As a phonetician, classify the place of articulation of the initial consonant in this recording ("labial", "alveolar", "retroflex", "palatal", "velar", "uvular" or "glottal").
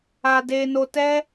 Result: alveolar